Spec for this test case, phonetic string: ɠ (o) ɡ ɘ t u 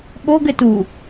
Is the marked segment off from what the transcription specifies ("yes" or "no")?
no